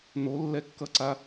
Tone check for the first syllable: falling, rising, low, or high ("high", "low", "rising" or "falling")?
rising